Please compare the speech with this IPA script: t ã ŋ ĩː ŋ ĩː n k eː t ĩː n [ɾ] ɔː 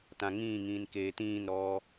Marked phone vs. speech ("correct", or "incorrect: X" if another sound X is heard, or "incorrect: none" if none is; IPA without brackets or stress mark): correct